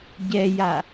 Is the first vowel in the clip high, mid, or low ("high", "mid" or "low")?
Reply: mid